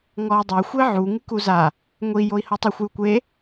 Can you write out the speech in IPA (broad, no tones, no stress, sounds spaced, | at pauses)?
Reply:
ŋ ɔ u̯ dˤ e xʷ e ʕ u ŋ ɨ k u z a | ŋʷ i j o i̯ h o tˤ ɐ xʷ j u kʷ e